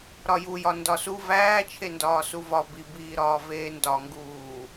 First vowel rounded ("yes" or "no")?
yes